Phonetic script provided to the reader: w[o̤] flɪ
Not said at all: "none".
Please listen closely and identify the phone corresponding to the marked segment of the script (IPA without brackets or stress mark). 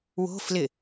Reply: o̤